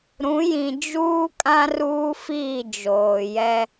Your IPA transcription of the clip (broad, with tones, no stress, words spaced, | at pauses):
ɾũ˨˦jĩ˨ d͡ʒuː˦kʼã˦ ruː˦fiː˦˨ d͡ʒoː˨jɛ˦